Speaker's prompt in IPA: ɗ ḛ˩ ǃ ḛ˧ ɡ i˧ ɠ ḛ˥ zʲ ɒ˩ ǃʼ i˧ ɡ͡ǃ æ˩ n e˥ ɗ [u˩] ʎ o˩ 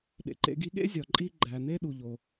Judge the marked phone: correct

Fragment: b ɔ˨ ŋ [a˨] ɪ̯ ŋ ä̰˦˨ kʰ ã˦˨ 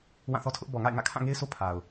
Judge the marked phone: incorrect: a̰˦˨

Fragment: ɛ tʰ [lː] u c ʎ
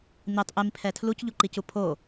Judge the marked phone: incorrect: l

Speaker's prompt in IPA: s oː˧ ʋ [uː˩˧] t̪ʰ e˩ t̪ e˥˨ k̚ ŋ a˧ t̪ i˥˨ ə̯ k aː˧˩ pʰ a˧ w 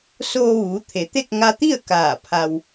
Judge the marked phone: correct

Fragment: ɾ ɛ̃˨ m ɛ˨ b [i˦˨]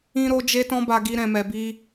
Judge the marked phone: incorrect: i˧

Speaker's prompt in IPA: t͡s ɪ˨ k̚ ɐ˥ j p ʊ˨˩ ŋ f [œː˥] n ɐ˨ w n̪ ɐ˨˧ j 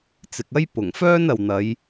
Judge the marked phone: correct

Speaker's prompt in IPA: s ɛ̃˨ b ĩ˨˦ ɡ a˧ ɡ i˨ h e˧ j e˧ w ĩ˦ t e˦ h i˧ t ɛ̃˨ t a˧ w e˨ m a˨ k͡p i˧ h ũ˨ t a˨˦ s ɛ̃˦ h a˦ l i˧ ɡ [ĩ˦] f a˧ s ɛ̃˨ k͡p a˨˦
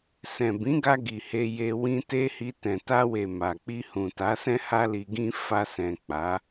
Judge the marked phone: correct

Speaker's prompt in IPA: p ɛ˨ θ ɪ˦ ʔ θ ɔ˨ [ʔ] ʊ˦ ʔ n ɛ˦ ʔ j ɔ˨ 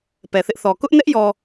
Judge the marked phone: incorrect: k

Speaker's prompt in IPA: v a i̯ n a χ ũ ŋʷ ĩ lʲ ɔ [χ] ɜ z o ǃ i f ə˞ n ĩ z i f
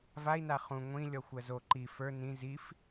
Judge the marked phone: incorrect: xʷ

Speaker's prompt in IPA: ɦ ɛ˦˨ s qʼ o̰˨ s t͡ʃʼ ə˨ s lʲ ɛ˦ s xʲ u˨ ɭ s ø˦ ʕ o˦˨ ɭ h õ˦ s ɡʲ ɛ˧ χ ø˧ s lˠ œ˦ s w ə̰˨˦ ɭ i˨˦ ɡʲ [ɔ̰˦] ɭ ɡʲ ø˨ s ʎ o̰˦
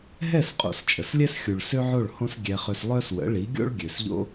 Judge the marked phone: incorrect: o̰˦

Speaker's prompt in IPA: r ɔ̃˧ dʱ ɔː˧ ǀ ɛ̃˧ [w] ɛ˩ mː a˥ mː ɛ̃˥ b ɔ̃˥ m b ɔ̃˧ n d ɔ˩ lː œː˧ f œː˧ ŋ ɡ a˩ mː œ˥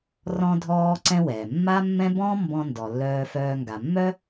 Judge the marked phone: correct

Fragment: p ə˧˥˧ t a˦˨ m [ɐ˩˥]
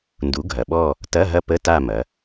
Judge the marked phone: incorrect: ɐ˩˧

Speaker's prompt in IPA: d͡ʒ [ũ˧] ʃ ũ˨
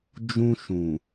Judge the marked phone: correct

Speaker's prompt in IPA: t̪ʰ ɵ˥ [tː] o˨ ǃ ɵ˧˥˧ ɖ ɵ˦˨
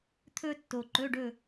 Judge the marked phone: correct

